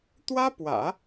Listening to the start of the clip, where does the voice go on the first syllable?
high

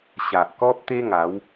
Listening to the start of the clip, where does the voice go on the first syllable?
low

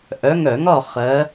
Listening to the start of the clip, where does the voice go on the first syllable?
rising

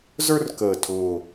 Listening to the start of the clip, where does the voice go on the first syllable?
high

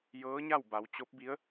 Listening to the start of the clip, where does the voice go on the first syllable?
rising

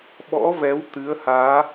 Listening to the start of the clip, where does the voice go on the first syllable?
rising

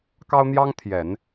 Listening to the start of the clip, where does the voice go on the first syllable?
high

